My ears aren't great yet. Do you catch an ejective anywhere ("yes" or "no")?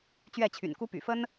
no